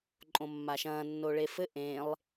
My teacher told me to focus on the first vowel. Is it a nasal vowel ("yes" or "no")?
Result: yes